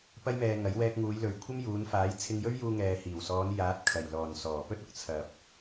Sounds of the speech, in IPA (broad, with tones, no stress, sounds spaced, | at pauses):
p ɐ˥ j m ɛː˧ ŋ ɐ˨˥ j w ɛː˧ k̚ ŋ uː˨˧ j l ɵ˨ ɥ kʷʰ ɐ˥ m j uː˨˧ n f aː˨˥ j t͡sʰ ɪ˧ ŋ j ɵ˥ ɥ j uː˧ ŋ ɛː˨ h iː˨˩ w s ɔː˨˧ n j aː˨˥ t̚ kʰ ɐ˨˩ j l ɔː˨˩ n s ɔː˨˩ p ɵ˥ t̚ ʊ˧ k̚ t͡sʰ ɐ˨ p̚